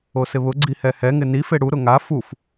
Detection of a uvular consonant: absent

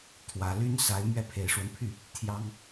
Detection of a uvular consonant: absent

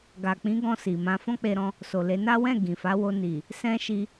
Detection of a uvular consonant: absent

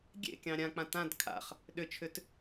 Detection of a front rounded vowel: present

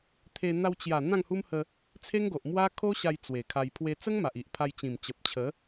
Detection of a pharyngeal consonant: absent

